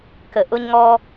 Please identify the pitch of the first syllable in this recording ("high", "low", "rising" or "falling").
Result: low